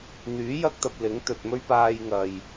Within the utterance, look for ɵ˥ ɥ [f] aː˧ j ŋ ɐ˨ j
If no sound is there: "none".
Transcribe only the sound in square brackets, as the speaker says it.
p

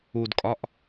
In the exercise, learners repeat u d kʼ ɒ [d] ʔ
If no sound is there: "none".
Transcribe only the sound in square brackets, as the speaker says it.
none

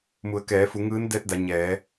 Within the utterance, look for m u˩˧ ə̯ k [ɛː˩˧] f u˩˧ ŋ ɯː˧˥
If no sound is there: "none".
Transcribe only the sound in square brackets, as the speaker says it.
ɛː˩˧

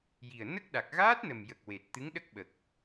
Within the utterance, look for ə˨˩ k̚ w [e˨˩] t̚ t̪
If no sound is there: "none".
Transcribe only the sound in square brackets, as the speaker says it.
e˨˩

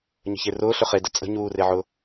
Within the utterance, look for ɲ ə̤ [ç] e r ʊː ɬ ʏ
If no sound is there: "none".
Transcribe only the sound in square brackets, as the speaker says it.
ç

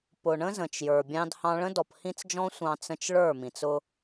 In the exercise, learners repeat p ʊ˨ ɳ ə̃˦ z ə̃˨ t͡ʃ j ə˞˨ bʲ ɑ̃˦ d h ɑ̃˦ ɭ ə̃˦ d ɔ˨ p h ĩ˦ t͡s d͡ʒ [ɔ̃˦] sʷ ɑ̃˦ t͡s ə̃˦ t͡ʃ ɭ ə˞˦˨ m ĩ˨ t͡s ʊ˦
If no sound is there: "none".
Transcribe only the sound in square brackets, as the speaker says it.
ɔ̃˦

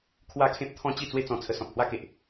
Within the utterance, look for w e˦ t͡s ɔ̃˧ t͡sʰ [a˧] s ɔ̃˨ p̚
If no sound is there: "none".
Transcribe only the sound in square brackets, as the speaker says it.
ə˧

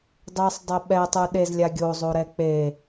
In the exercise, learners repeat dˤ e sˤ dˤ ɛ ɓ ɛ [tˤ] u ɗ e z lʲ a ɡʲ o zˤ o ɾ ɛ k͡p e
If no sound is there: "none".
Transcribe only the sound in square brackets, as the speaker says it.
tˤ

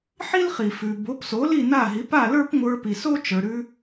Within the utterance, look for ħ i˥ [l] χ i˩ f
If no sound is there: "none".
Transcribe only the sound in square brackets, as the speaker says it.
l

